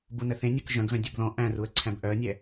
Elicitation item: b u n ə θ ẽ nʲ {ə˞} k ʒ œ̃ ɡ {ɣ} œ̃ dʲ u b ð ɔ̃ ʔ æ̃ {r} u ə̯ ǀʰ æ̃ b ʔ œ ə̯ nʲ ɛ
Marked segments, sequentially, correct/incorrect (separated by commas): correct, correct, correct